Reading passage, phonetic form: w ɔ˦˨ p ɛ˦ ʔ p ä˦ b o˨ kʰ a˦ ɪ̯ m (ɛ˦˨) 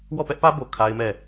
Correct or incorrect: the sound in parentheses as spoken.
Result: correct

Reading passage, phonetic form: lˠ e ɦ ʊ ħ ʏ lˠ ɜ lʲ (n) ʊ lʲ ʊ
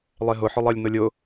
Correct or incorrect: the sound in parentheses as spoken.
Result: correct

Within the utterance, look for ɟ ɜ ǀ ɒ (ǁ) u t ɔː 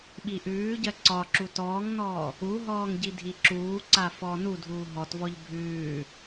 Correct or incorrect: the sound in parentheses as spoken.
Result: correct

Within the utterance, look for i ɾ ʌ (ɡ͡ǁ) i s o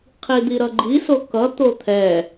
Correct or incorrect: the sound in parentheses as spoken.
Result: incorrect: ɡ͡ǃ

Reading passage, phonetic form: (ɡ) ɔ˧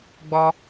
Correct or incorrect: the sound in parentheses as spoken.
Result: incorrect: ɡ͡b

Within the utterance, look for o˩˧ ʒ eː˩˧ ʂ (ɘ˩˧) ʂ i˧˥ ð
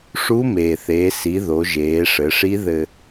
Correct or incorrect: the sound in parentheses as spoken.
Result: correct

